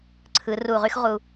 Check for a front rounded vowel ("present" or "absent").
present